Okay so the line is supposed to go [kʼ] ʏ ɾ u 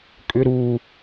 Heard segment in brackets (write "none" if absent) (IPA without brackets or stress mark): kʼ